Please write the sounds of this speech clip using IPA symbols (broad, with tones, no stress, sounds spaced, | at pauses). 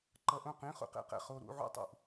ǃ ʌ˧ ʔ õ˥˩ q ĩ˧˥˧ χ ṵ˥˧ q ḛ˥˩ q ɛ̰˥˩ χ o˧ ɾ ṵ˧˥˧ ʕ ṵ˥˩ tˤ ṵ˥˩ ʔ